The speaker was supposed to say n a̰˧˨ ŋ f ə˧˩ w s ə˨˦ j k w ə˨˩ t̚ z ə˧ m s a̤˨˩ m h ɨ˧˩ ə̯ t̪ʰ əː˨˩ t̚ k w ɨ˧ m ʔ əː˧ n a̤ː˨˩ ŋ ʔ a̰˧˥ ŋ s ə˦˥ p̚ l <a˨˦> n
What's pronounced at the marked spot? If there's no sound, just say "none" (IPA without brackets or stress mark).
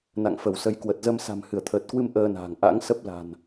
a̤˨˩